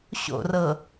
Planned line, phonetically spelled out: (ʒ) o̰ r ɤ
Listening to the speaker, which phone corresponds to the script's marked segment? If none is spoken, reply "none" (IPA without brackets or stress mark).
ɕ